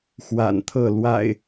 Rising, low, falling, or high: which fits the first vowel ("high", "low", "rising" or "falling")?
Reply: low